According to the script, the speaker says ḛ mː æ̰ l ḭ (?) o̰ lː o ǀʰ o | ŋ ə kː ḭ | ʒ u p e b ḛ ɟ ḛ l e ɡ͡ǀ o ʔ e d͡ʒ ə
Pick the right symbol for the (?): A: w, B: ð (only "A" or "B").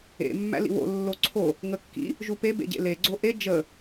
A